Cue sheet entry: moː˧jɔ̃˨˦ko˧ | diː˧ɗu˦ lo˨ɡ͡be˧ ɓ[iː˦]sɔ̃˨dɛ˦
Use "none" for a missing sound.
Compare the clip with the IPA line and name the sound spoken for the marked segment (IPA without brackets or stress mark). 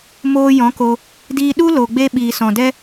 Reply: iː˨